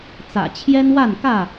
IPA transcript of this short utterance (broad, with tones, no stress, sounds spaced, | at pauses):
t͡s ä̰˨˩ t͡ɕʰ j ɛ˦ n w a˥˨ n k ä˥˨